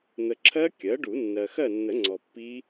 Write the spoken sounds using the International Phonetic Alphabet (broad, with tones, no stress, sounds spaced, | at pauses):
n̪ ə˨ ǁʰ ɜ˦˥ kʲ ɜ˩˥ ɖ u˨˩˦ nː ɜ˨ x ɜ˦˨ nː ə˨˩˦ ŋ͡ǀ ɔ˨ pː i˦˥